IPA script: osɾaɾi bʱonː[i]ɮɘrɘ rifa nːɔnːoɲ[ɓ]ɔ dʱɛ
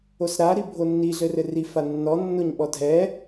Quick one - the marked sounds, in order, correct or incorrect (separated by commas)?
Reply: correct, correct